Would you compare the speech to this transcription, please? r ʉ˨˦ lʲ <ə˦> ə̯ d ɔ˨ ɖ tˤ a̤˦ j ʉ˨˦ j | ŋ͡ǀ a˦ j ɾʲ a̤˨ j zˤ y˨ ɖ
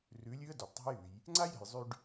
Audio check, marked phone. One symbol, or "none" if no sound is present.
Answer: ʉ˦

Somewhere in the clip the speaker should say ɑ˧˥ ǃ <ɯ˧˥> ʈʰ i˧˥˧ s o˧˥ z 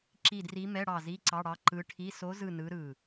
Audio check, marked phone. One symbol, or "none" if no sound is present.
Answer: ɯ˧˥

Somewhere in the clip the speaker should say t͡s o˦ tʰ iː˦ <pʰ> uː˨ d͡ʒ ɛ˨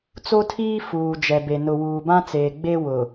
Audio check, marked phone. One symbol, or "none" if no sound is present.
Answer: f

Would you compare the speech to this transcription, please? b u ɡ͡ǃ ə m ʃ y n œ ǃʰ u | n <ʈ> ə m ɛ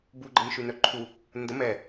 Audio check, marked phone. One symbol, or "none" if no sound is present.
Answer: d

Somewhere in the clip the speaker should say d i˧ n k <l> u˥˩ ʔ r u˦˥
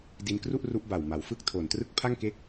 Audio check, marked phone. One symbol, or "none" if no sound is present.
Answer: r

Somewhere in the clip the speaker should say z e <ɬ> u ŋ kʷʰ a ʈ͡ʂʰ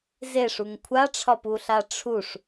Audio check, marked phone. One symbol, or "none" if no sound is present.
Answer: ʂ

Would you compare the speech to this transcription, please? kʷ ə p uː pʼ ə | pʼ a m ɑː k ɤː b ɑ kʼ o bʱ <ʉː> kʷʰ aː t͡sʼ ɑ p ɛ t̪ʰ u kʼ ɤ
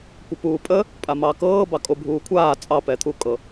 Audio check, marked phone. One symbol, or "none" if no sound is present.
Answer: uː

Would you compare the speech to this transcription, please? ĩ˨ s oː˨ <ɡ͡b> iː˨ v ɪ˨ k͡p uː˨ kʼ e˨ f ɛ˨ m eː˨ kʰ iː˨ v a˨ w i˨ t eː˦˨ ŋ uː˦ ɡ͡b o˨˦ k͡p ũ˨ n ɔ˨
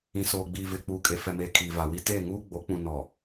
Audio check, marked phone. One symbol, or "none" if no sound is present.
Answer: ɡ͡b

